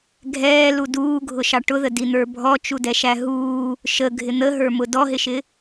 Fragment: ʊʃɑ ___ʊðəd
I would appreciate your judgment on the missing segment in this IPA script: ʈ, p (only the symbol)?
ʈ